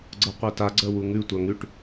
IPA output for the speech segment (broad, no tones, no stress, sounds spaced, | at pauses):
ɡ͡ǀ ɤ qʷ ɜ t a ɡ͡ǀ ɜ w u ŋ ʉ tʷ a ŋ ʉ ʈ